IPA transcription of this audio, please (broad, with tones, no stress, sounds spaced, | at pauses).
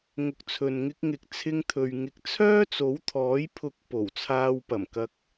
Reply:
ŋ ʊ˨ k̚ t͡sʰ ɵ˨ n ŋ ɪ˧ k̚ ŋ ɪ˧ k̚ t͡sʰ ɪ˧ ŋ t̪ʰ ɵ˨ ɥ ŋ ɪ˨˥ k̚ t͡sʰ œː˥ t͡s o˨˥ w t̪ʰ ɔː˨˥ j pʰ ʊ˧ k̚ p o˨˩ w t͡sʰ aː˧ w p ɐ˨˩ m k ɐ˧ k̚